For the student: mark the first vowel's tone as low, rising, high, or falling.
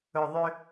low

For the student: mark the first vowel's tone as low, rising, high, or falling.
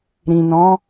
low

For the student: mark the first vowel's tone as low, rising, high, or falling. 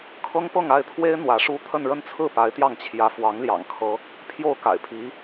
high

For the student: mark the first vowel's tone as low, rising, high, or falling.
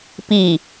low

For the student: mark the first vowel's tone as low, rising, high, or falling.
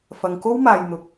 low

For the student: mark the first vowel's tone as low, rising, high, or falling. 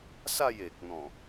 falling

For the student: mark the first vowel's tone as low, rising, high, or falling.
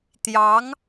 rising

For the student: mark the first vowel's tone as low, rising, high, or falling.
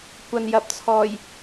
low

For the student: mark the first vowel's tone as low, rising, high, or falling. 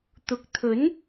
rising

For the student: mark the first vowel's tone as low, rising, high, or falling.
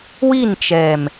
falling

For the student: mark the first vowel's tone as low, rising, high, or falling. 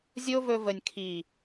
high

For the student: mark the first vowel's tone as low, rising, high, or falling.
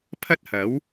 high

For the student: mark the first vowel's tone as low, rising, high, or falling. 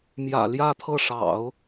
low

